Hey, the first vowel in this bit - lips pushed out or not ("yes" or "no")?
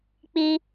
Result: no